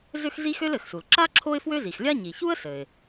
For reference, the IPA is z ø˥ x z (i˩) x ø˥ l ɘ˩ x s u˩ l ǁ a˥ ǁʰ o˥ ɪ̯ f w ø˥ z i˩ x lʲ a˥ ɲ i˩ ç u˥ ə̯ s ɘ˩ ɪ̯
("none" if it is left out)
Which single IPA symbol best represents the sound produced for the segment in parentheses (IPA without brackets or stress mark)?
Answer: i˥